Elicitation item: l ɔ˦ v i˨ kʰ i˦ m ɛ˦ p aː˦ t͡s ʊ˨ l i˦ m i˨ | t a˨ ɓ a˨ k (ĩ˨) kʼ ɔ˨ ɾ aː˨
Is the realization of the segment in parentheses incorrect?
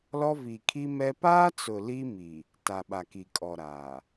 yes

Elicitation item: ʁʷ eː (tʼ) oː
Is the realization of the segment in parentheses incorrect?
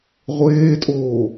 no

